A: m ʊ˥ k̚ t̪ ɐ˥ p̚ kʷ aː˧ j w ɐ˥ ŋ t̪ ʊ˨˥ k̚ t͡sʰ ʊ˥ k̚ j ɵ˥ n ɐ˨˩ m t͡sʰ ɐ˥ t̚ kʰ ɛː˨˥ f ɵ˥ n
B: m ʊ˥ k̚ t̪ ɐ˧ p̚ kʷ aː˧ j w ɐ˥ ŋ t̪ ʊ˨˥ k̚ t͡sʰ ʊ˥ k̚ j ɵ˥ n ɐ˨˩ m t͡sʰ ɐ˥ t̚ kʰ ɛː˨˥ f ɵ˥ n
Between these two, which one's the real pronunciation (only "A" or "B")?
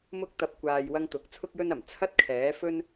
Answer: B